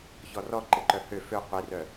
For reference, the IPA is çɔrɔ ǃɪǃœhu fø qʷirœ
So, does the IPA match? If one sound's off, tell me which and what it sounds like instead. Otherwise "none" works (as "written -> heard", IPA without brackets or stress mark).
u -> ø